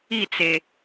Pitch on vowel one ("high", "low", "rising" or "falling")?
falling